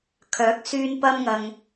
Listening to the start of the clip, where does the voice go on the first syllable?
rising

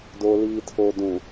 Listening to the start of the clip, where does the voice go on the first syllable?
low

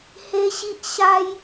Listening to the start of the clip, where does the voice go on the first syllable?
high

